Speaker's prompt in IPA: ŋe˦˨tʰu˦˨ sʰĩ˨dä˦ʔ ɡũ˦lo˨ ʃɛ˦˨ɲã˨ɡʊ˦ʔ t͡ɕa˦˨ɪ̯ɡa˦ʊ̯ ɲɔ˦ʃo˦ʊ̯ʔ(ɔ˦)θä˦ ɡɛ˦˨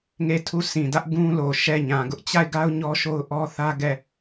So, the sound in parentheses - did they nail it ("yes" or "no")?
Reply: yes